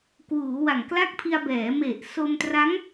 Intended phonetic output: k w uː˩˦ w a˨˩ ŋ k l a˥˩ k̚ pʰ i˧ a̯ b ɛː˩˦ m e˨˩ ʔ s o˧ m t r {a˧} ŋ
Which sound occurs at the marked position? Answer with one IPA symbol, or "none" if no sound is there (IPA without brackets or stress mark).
a˦˥